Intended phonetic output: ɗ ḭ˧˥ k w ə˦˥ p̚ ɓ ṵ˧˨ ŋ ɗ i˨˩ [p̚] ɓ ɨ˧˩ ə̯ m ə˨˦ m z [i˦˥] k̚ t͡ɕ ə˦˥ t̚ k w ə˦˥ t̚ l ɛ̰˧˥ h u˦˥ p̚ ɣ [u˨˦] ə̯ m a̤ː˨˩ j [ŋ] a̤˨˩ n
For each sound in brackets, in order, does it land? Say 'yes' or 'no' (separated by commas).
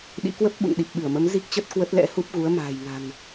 yes, yes, yes, yes